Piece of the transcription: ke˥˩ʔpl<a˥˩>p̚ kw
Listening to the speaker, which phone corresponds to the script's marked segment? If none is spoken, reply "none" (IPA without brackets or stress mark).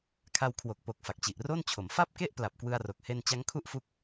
a˨˩